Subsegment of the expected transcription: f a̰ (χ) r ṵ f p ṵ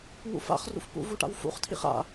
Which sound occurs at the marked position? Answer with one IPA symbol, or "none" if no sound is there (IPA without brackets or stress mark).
χ